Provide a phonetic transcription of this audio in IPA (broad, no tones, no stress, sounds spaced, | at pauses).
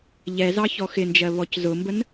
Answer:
ʎ ɛ z ɑ ç ɔ x ɪ n d͡ʒ ɜ β ɔ c z ʊ m b ə n